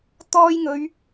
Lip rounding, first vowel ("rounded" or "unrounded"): rounded